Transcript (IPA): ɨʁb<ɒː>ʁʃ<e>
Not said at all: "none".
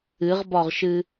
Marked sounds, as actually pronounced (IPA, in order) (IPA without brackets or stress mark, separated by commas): ɒ, ɨ